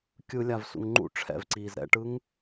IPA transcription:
kʲ ɯ lʲ a v s ṵ ŋ ŋ͡ǃ ṵ ʈ͡ʂʰ ɛ̰ v ǀ iː z ɾ ɛ̰ ʈ ɯ ŋ

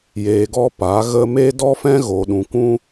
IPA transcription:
j eː˨ ɡ ɔ˧ p a˨˦ ɣ ə˦ m e˦ d ɔ˦ f ɛ̃˦ ɣ o˨ ɗ ũ˨ kʷ ũ˦

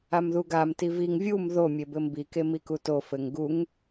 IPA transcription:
a m ð u ɡ a m t i v i ŋ vʲ u m ð o mʲ e b ɘ m b i k e m i k u t o f ɘ ŋ ɡ u ŋ

